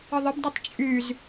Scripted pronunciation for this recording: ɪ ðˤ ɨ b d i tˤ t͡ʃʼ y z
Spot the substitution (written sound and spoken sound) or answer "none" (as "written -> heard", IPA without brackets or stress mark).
ɨ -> ɪ